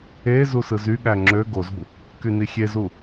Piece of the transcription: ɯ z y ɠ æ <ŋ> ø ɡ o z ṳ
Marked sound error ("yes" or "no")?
yes